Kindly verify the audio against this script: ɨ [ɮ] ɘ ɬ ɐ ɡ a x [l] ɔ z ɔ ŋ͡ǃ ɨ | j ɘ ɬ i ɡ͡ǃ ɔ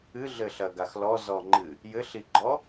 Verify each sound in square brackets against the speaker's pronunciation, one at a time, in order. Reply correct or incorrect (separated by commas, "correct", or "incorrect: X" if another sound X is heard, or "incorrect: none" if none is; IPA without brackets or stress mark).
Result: correct, correct